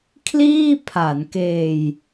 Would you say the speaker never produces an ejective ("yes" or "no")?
yes